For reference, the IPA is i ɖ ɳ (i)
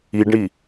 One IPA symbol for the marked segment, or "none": i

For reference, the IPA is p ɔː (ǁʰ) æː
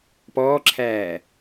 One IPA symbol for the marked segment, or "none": ǁʰ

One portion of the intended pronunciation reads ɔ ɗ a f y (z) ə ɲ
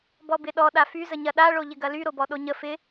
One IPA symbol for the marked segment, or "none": z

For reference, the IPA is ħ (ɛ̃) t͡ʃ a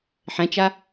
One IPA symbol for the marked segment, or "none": ɛ̃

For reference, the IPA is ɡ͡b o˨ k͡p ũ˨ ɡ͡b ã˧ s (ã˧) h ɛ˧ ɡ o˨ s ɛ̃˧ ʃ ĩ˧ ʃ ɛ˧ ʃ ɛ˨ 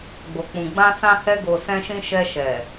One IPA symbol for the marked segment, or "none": ã˧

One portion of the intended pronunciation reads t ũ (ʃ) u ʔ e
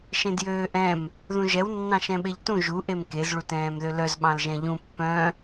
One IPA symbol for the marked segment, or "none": ʒ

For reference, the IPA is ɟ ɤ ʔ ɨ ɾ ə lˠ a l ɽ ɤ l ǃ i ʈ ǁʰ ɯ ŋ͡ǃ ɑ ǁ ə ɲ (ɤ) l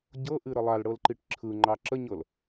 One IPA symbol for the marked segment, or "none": ɤ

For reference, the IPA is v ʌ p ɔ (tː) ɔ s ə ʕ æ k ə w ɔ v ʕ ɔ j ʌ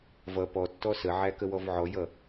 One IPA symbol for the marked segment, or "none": tː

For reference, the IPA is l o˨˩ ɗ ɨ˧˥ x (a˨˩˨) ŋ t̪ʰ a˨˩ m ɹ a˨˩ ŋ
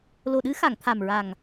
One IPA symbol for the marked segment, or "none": a˨˩˨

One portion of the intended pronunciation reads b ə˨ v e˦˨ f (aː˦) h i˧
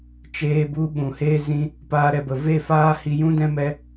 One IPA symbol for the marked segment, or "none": aː˦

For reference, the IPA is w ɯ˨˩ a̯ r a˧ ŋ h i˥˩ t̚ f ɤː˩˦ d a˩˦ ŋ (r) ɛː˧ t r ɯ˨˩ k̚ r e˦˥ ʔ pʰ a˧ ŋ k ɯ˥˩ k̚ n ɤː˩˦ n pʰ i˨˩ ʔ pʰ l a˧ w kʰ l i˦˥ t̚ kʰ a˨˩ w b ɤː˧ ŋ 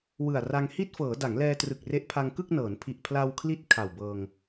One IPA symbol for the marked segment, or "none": l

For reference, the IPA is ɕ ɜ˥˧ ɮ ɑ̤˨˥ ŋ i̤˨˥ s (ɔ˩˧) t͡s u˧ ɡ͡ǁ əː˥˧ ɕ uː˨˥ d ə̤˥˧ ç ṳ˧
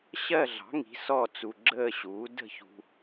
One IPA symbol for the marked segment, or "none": ɔ˥˧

